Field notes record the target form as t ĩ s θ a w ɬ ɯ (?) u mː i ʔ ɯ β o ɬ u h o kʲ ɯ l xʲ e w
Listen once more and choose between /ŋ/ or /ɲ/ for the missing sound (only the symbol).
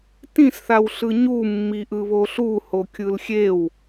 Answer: ɲ